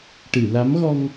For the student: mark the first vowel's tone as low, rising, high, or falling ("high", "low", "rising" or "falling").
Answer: low